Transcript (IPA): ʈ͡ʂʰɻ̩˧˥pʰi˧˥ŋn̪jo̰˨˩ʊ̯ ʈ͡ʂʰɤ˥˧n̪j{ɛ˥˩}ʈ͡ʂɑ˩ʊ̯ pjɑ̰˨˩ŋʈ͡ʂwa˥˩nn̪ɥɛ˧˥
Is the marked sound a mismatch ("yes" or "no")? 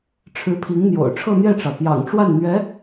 no